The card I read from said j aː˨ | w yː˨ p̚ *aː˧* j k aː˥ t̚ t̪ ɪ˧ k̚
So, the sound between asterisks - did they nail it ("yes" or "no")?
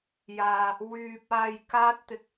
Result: yes